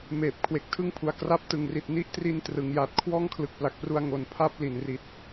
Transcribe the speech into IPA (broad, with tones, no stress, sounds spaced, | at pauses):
m eː˨˩ p̚ kʰ w e˨˩ k̚ tʰ ɯ˥˩ ŋ pʰ u˨˩ a̯ k r a˦˥ p̚ t ɯ˨˩ ŋ r i˨˩ t̚ n i˦˥ ʔ t r i˧ n t r ɯ˩˦ ŋ j aː˨˩ t̚ kʰ w ɔː˥˩ ŋ kʰ l ɯ˨˩ k̚ p l a˨˩ k̚ p r u˧ a̯ ŋ o˧ n pʰ a˥˩ p̚ l i˩˦ n r i˨˩ t̚